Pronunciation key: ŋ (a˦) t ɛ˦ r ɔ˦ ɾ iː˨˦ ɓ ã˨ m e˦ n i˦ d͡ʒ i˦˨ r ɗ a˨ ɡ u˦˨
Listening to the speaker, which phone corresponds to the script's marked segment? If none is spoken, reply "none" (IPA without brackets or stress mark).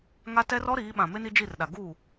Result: a˦